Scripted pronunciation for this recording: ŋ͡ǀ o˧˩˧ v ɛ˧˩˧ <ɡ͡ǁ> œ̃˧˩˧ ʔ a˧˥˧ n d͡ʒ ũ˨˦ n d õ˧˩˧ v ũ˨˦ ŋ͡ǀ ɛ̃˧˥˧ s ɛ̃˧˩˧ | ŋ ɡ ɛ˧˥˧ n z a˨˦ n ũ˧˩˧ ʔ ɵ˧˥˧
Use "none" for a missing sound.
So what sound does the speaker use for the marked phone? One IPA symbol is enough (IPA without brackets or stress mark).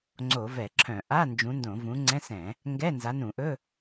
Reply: ǁʰ